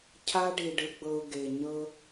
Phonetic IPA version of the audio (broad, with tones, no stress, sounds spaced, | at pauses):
cʰ a˧ ɖ i˨ ɖ ɯ˨ ɡ͡b ɤ˨ ʊ̯ ɡ e˨ ɲ ɤ˧